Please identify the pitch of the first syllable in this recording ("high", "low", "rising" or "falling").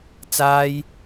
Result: high